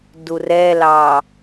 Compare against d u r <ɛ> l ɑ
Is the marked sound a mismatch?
no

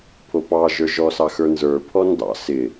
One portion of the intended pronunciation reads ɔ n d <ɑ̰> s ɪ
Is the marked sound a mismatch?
no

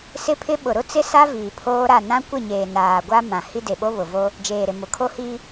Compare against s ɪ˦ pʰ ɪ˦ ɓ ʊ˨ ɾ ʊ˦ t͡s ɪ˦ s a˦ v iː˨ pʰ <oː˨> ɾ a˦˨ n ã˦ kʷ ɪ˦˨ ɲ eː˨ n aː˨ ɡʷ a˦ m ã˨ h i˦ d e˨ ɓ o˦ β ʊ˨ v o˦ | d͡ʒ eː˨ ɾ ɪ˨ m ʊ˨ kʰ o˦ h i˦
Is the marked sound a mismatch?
yes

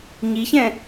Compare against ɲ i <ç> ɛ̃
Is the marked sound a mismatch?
no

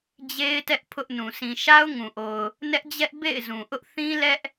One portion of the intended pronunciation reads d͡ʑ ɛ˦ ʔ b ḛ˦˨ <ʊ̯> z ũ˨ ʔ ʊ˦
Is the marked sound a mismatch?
yes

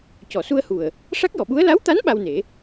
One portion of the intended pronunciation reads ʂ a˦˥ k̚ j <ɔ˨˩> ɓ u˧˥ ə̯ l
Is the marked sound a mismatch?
yes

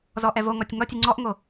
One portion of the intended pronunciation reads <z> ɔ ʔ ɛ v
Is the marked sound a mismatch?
no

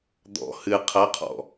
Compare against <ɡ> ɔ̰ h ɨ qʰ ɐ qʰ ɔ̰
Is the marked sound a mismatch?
yes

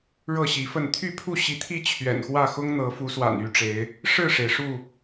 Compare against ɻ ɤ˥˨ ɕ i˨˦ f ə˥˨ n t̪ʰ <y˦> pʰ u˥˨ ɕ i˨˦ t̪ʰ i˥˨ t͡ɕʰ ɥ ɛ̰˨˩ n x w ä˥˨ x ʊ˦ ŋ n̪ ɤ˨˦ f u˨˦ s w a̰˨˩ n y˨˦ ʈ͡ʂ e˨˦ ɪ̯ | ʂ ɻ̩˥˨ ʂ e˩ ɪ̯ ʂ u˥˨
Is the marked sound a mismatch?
yes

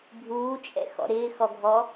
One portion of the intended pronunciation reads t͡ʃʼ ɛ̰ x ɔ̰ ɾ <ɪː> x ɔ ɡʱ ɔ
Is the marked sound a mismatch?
no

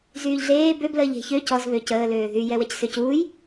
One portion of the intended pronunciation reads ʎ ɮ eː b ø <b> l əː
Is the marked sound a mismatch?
no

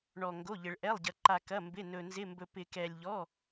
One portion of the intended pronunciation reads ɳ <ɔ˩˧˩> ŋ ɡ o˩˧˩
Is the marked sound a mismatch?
yes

